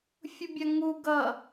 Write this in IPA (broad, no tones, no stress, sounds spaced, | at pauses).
fʲ u bʲ a ŋ u ɡ ʌ